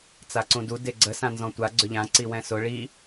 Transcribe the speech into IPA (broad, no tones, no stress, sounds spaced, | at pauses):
t͡s a ǀ ũ d u d e ɡ͡ǀ ə s ã n z ɔ̃ tʷ a ɡ͡ǀ ʏ ʎ ã ǀ i w ɛ̃ s ʊ ɭ i